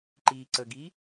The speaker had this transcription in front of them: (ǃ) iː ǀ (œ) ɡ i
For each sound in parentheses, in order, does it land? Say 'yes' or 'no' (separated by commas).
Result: yes, no